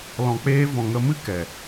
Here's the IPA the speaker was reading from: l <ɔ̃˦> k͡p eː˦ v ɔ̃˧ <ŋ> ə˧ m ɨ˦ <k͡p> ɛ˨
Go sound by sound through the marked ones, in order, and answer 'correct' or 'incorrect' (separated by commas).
incorrect, correct, incorrect